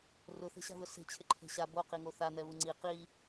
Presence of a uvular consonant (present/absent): present